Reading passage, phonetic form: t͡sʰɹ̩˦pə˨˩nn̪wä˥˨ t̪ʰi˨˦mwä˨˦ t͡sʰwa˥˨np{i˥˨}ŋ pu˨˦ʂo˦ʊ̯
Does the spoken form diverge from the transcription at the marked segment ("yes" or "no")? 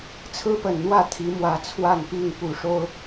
no